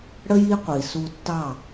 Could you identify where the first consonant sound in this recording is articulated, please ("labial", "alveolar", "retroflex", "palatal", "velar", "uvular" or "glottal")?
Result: retroflex